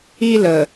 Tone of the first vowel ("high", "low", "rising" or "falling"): high